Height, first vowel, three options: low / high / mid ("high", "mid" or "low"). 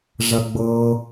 low